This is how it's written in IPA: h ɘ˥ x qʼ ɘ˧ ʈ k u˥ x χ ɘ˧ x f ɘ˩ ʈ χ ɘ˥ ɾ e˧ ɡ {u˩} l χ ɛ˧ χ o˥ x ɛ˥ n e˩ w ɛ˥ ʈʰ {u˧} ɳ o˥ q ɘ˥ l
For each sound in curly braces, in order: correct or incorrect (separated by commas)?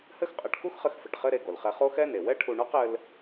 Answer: incorrect, correct